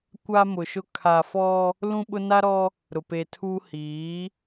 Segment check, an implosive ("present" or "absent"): present